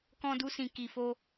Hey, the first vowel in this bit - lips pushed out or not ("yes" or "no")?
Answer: yes